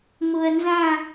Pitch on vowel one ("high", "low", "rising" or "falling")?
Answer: low